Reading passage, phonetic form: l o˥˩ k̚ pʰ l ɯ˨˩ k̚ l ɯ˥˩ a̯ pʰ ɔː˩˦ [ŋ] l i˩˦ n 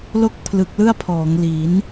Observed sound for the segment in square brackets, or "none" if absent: ŋ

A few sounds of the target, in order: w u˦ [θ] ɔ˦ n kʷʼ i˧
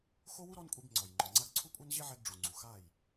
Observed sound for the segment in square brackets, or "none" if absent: ɾ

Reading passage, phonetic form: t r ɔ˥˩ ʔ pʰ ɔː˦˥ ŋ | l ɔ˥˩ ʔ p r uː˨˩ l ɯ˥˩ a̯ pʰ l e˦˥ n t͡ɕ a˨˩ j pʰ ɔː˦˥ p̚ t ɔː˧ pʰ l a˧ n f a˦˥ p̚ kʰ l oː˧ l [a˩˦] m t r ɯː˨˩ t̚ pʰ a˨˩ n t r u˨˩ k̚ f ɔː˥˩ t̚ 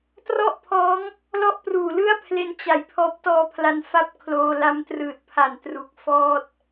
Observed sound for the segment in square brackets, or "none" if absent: a˦˥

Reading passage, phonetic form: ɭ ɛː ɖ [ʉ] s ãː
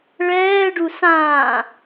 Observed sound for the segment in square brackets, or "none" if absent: u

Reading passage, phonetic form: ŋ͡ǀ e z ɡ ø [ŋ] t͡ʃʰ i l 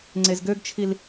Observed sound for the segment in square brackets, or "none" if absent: ɡ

